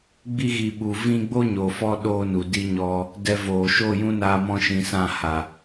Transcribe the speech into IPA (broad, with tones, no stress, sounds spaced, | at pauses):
ɡ͡b i˧ ɣ i˨ ɓ u˨ v ĩ˦ ɡ͡b o˦ ɲ o˨ f ɔ˧ ɗ oː˦ n u˨ d i˦ ɲ ɔ˦ | d ɛ˧ v oː˨ ʃ oː˦˨ j ũ˦ n aː˧ m ɔ̃˧ ʃ ĩ˨ s ã˦˨ h a˨